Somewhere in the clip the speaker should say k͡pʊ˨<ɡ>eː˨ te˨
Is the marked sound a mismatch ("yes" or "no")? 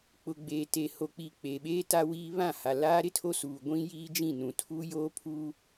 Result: yes